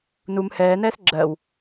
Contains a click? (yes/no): yes